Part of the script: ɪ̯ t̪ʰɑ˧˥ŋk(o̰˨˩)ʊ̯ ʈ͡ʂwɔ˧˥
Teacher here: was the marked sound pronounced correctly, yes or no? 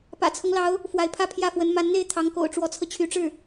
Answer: yes